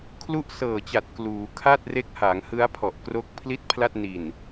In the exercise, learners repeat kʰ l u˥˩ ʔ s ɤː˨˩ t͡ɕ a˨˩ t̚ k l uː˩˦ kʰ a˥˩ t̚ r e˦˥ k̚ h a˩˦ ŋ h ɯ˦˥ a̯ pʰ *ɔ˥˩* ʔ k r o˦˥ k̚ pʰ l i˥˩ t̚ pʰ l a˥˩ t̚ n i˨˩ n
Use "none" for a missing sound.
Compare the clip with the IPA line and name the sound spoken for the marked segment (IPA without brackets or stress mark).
ɔ˨˩